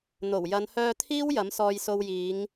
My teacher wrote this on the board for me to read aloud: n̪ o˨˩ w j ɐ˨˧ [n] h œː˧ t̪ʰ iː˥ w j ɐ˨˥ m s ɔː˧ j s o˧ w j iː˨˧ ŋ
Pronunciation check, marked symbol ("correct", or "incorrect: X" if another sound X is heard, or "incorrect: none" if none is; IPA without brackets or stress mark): correct